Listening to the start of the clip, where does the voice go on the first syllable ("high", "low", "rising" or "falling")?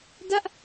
falling